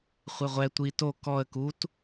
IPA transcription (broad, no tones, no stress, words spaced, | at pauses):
χʷeʁʷɛ tʷi to kɔə̯ kut